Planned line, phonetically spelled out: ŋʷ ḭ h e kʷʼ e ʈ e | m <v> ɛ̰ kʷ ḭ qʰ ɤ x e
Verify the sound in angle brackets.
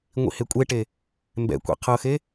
incorrect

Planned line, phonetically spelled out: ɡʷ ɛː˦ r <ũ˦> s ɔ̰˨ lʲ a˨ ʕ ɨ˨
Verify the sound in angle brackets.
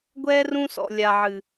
correct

